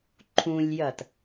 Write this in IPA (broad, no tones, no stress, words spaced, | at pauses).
ǃʰũlʲjɐt